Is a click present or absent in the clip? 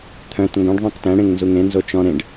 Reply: absent